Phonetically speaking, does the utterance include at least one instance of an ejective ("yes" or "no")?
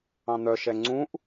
no